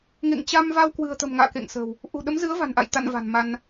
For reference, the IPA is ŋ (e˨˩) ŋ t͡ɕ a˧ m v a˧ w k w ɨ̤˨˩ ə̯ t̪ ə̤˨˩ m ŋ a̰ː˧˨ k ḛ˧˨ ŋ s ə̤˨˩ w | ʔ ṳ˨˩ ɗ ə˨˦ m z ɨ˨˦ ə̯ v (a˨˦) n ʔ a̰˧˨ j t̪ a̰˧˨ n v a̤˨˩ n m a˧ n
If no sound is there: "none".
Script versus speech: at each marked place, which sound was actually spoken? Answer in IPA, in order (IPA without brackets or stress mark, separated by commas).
ḛ˧˨, a̤˨˩